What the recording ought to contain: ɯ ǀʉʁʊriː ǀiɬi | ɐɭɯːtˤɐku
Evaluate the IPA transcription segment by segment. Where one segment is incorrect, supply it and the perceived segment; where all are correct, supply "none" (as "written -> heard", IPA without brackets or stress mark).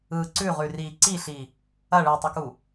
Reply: ʊ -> ʉ